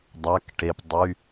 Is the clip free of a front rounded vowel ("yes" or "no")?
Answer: no